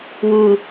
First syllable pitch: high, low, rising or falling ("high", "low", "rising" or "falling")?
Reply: low